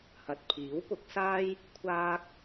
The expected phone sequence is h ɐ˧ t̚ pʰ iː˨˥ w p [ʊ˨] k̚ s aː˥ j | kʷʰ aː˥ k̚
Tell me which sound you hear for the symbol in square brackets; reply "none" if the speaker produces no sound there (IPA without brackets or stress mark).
ʊ˨˥